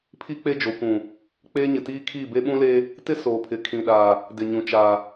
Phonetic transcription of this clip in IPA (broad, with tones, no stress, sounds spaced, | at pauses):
pʰ i˦ k͡p e˦ d͡ʒ o˨ kʷ ũ˨ | k͡p eː˦ ɲ ɪ˨ t iː˦ kʰ iː˦˨ b e˦ ɓ ũ˦ l eː˦ | t ɪ˦ s oː˨ pʰ ɪ˨ kʰ ĩ˨ ɗ aː˨ | d ɪ˨ ɲ ũ˨ t͡ʃ aː˨